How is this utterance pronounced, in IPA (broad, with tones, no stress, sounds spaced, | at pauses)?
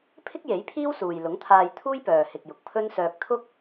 pʰ ɪ˥ k̚ j e˨˥ j pʰ iː˥ w s uː˨ j l ʊ˨˥ ŋ t̪ʰ aː˧ j t̪ʰ uː˥ j p œː˨ h ɪ˨ k̚ j ʊ˨ k̚ pʰ ɵ˥ n s œː˧ k̚ t̪ʰ ʊ˥ k̚